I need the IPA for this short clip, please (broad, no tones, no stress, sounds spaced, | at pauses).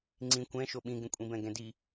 ŋ͡ǀ ĩ kʷ ɛ̃ ʃ o ɓ ĩ ɡ ẽ kʷʼ ĩ b ɛ̃ ɡ ɛ̃ d i